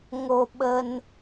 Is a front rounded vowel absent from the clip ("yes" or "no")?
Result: yes